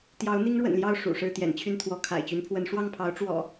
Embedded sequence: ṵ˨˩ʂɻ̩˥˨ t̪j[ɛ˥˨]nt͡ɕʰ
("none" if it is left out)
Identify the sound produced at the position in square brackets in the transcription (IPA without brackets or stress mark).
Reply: ɛ̰˨˩